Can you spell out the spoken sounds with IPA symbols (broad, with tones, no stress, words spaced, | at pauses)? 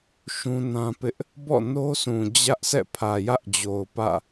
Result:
ʃũ˦nã˦pɪ˦ʔ | bɔ̰˦˨no˦sũ˨ d͡ʑä˦ʔsɛ̰˦˨ pʰä˨jä˦ʔd͡ʑo˨ʊ̯ pä̰˦˨